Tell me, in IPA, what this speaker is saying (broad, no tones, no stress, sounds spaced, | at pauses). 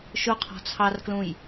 ʃ ʊ qʰ ɔ̤ t͡sʰ ɑ r k l ũ j